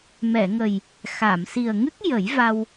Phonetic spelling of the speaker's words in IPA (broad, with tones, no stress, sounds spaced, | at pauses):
m ɛ˨˩˨ ŋ ə˨˩ j | x a˨˩˨ m s i˨˩ ə̯ ŋ ɨ˦˥ k̚ j ə˨˩˦ j v a˧ w